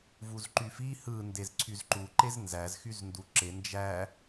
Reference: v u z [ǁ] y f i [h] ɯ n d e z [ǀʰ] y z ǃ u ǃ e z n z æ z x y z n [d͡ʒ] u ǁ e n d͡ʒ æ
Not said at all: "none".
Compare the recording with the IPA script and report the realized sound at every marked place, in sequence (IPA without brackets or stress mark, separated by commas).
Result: ǃ, h, ǀʰ, d